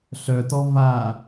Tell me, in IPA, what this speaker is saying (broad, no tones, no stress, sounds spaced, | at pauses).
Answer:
ɬ œ t ɔ v a